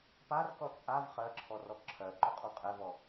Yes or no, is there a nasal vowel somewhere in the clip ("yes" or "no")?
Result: no